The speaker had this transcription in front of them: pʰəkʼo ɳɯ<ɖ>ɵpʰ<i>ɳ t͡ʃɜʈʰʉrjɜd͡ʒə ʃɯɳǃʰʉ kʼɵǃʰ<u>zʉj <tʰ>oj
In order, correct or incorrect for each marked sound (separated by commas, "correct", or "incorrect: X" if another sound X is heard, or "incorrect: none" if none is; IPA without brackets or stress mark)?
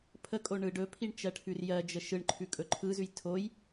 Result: correct, correct, incorrect: ɯ, correct